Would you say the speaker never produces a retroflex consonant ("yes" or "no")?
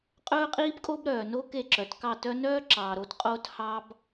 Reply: yes